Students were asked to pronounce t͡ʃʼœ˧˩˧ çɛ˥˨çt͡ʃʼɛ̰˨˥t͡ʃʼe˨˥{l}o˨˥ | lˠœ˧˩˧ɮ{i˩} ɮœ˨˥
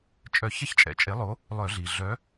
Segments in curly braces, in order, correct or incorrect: incorrect, correct

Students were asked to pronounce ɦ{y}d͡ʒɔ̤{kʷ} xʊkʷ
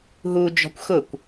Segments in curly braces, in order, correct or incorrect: incorrect, correct

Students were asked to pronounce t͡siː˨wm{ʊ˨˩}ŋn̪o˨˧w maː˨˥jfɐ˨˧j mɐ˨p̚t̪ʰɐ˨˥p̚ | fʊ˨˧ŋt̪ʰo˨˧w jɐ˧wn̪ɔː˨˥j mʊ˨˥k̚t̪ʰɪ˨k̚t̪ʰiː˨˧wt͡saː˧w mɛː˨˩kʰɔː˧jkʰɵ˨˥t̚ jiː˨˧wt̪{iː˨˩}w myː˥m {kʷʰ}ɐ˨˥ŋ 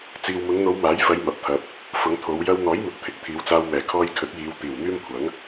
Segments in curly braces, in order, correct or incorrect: incorrect, correct, correct

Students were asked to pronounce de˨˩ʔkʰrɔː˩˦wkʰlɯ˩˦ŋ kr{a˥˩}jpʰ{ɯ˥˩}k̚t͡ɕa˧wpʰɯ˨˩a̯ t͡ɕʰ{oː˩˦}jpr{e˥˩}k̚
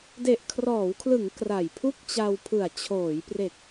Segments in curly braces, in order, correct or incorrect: incorrect, incorrect, correct, incorrect

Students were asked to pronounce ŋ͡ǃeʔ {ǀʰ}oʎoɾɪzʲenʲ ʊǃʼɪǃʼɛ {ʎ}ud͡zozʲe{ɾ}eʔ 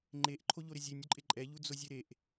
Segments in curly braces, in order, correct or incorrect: incorrect, correct, correct

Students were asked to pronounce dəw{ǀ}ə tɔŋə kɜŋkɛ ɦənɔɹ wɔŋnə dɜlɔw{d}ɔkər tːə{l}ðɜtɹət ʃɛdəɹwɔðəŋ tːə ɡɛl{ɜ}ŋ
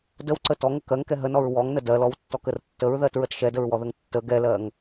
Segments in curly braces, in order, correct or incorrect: correct, incorrect, incorrect, correct

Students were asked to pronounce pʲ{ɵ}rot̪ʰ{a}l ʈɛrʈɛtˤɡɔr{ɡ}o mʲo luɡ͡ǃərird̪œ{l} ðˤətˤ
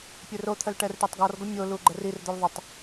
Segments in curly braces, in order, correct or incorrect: correct, incorrect, correct, correct

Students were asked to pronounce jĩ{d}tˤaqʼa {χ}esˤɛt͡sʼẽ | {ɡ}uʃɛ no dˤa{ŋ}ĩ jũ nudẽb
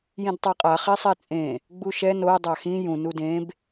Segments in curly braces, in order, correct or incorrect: correct, correct, incorrect, incorrect

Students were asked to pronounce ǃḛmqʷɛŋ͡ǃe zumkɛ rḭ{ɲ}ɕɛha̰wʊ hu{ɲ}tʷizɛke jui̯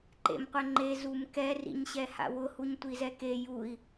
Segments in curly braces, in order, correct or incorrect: correct, correct

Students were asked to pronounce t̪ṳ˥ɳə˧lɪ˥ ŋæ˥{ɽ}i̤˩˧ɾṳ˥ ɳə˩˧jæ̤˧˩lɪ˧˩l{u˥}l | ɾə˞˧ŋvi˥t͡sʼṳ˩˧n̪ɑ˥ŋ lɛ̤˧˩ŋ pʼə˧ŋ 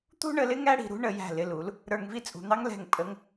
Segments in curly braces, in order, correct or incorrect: correct, incorrect

